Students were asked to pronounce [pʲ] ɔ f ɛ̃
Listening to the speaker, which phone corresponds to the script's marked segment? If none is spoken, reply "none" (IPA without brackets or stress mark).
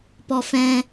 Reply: p